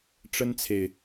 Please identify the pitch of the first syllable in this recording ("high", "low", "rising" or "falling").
high